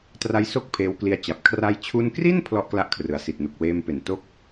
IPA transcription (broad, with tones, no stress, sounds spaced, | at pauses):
t r a˧ j s o˦˥ k̚ pʰ eː˧ w k l i˧ a̯ t͡ɕ a˨˩ p̚ kʰ r a˧ j t͡ɕʰ u˧ n k r i˥˩ n pʰ l ɔ˥˩ ʔ k l a˥˩ ʔ kʰ r ɯ˨˩ a̯ s i˨˩ t̚ n u˨˩ k̚ w eː˧ m p e˩˦ n t o˥˩ k̚